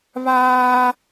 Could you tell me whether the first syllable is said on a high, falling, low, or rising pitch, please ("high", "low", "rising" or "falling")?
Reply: high